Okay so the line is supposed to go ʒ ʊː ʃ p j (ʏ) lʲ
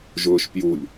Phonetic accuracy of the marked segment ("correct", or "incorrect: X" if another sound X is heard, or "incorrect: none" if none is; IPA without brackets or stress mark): incorrect: u